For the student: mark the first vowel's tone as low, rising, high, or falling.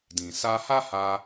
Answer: low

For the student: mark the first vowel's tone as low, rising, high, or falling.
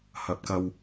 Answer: rising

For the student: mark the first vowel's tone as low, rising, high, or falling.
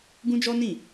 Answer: high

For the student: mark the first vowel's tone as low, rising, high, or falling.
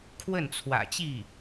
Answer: falling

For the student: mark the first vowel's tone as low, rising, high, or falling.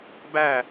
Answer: falling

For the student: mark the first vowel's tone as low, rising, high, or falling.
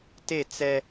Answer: falling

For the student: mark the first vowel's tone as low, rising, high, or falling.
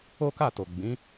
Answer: high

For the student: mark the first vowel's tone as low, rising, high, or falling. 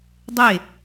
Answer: falling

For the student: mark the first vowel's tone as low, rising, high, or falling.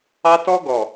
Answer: high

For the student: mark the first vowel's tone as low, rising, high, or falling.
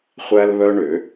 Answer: high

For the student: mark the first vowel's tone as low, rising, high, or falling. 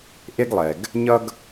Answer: high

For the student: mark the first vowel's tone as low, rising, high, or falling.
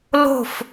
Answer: falling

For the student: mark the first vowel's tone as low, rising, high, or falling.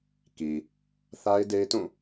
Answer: low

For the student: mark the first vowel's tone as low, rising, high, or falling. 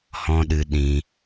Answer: high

